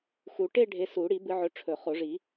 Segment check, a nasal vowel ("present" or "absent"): absent